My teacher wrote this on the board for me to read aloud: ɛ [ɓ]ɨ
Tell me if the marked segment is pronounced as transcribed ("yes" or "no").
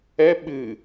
yes